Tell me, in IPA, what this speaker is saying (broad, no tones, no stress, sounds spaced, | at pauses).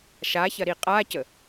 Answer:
ʃ a ç ɐ ɾ i qʼ a c ə